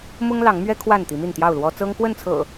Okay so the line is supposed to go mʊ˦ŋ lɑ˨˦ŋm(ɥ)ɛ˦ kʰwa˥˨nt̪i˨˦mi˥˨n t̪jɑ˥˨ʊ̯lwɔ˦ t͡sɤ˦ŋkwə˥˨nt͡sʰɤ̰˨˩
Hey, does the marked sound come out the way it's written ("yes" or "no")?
yes